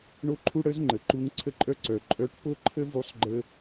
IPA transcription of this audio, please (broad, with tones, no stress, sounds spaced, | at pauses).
ɳ o˥ ǃʰ u˥ ɽ ə˧˥ z ŋ͡ǃ ə˩ ǃ u˧˥ ŋ ǀʰ ə˥ ǃʼ œ˥ ǀ œ˩˧ ǃʼ œ˧˥ ʈ p o˥ ǃʰ ə˥ v u˧˥ sˤ ɡ͡ǃ ə˧